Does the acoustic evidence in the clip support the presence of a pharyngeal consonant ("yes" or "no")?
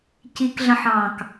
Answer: yes